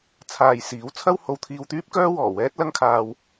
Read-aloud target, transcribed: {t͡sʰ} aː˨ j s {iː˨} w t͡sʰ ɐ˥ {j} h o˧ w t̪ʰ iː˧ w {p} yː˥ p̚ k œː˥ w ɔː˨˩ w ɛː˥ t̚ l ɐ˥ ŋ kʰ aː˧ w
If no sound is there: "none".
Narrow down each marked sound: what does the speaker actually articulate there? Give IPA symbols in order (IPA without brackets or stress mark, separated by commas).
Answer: t͡sʰ, iː˨˥, w, t̪